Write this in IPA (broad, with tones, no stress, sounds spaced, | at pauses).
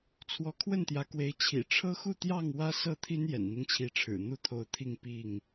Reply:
t͡sʰ w ɔ˨˦ kʰ w ə˥˨ n t̪ j ä˨˦ k w e˨˦ ɪ̯ t͡ɕʰ ḭ˨˩ ʈ͡ʂʰ ɤ˦ x u˥˨ t̪ j ɑ˥˨ ŋ w ä˦ s ɤ˥˨ t̪ʰ i˦ n j ɛ̰˨˩ n n̪ i˦ ŋ t͡ɕʰ i˨˦ ʈ͡ʂʰ ɻ̩˨˩ n̪ u˥˨ t̪ʰ o˨˦ ʊ̯ t̪ʰ i˥˨ ŋ p i˥˨ ŋ